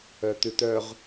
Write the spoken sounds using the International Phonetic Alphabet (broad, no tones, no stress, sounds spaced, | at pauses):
œ t̪ ʉ t̪ œ ʁ